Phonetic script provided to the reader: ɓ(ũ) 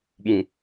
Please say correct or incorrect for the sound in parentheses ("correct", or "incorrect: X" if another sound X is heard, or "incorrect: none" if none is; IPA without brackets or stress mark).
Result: correct